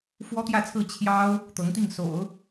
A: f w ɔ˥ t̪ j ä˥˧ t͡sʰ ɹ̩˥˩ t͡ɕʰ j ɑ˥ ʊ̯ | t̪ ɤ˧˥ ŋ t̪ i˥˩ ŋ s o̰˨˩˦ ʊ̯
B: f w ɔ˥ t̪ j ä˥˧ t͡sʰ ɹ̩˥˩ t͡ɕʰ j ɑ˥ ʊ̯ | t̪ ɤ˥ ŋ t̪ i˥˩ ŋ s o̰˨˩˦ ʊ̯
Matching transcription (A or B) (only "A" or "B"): A